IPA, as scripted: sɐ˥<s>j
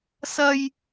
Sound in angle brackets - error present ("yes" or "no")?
yes